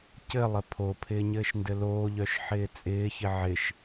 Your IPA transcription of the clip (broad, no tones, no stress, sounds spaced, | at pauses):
c ɘ lˠ ɘ pʰ o pʰ ɪː ɲ ɘː ʃ n d ɘ l oː ʎ œ ʃ ħ ɪː t͡sʼ ɪː ç ɪ ʕ ɪ ʃ